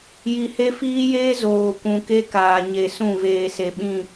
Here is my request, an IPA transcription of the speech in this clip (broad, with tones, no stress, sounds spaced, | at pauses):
j i˨ h e˦ f iː˦ j eː˦ z oː˨ kʷ ũ˨ k e˦ k aː˨ ɲ e˨ s ũ˦˨ v eː˨ s e˨ ɓ ĩ˦˨